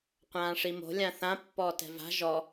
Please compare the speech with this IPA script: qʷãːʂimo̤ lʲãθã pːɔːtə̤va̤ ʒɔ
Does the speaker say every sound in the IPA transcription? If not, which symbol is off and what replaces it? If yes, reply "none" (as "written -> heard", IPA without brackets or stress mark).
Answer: ə̤ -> ɛ̤